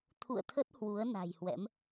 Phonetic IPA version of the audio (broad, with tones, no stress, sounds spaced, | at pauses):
t̪ʰ ṵ˧˨ ə̯ t̪ʰ ə˦˥ t̚ h w u˨˦ ə̯ n a̤˨˩ j h w ɛ̰˧˥ m